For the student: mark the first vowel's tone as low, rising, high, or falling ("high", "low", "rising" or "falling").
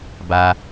high